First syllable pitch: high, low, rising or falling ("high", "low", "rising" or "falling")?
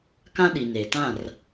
high